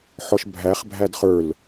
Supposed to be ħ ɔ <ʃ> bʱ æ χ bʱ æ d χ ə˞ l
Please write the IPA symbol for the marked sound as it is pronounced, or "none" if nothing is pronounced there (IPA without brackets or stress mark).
ʃ